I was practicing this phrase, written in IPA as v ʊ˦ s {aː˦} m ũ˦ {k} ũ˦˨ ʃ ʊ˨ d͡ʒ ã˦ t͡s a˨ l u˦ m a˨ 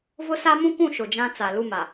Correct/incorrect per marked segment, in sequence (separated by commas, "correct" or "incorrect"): incorrect, correct